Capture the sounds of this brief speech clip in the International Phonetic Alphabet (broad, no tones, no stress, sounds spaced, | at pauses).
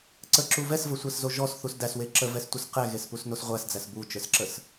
ǀ ə ǁ u v ɛ s v ə sʷ ɛ s z o ʒ ɔ s θ u s d æ s w e ǁ ə v ɛ s tʷ ə s q ɛ ɣ e s p u s n o s ʁʷ æ s d͡z æ s b u t͡ʃ ə˞ s ǁ ə s